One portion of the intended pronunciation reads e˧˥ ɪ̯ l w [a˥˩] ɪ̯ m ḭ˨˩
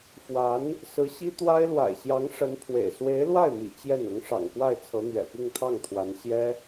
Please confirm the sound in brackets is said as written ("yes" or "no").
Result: yes